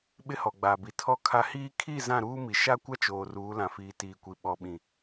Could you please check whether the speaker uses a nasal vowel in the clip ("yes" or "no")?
yes